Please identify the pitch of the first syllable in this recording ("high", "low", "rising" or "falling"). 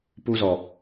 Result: high